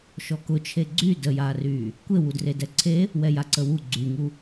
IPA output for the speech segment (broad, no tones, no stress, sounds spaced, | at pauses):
ʃ ɔ k ʊ t͡ʃʰ e ɡ͡ǀ y d ə j aː r yː | kʷ e w u d r e d ɛ ǀʰ e | w ɛ j a ǀ ə w u ɡ͡ǀ y ŋ u